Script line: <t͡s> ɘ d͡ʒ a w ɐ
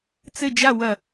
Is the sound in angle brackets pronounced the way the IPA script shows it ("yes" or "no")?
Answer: yes